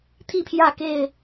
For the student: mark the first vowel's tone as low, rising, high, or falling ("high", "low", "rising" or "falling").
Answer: falling